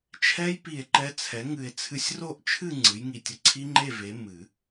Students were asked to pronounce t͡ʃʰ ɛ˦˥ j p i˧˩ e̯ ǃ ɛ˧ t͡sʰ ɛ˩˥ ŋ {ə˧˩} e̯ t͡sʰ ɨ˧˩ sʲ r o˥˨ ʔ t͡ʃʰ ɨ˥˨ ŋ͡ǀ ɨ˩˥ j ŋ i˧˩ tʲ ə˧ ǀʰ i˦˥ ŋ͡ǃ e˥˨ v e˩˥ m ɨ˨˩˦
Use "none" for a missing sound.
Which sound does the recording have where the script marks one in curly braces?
ɨ˧˩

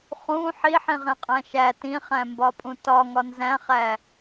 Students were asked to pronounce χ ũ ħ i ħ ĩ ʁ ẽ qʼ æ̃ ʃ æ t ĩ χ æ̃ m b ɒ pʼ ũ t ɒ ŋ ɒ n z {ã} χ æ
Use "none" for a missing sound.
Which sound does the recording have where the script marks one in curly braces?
æ̃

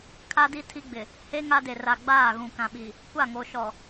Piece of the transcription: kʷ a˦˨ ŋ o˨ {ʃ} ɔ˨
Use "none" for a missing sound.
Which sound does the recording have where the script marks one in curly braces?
ʃ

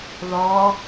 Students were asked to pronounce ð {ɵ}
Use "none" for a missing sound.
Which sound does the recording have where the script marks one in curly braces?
ɔ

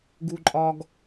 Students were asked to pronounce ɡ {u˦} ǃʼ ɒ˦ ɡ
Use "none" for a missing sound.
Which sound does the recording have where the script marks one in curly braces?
u˦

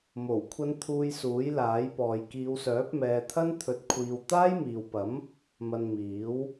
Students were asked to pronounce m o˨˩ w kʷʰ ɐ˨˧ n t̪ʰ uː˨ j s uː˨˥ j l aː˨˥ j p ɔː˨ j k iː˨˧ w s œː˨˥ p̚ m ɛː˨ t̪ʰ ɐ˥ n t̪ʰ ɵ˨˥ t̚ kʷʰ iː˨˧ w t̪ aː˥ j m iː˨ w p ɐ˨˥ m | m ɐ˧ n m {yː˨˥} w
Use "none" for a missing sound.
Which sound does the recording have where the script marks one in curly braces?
iː˨˥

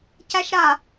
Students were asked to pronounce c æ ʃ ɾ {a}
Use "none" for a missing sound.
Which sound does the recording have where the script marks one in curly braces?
a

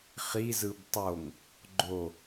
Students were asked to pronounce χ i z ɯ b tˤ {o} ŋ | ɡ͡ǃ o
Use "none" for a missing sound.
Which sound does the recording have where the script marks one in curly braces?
o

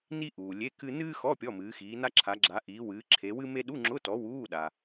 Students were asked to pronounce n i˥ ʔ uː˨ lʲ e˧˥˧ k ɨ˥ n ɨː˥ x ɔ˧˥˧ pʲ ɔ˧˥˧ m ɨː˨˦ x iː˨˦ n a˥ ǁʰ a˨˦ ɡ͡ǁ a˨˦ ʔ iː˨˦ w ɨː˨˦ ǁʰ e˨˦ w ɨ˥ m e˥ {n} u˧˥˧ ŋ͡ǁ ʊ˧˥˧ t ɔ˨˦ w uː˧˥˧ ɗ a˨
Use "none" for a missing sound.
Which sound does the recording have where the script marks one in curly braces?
ɗ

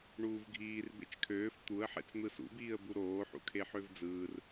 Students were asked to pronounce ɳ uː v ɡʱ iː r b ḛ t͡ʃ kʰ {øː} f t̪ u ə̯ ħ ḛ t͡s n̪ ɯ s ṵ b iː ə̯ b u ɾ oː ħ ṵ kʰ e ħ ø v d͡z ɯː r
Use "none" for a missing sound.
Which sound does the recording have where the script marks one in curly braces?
øː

